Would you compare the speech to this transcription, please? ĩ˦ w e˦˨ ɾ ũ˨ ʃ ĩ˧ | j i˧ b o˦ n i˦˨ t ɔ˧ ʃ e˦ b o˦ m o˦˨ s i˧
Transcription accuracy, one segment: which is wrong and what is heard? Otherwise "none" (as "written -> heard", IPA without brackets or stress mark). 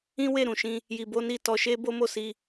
none